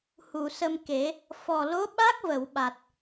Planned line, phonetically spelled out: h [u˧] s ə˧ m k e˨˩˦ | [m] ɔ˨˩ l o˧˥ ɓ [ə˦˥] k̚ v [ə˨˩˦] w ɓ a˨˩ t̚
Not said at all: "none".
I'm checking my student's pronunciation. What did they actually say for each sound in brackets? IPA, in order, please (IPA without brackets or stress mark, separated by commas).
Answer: u˨˩˨, f, a˦˥, ə˨˩˨